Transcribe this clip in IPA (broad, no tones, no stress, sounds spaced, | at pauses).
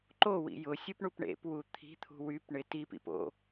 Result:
ǃ o w ḭ j ʊ sʲ u p ɳ u p ɳ ḛ p w u t̪ʰ i̤ t̪ʰ ṳ w y p ɳ ɪ t i p ḭ p o̰